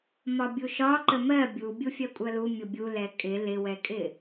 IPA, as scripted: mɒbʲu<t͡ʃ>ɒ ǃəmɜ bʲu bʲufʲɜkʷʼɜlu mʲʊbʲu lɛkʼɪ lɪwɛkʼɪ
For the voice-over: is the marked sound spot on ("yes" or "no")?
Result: no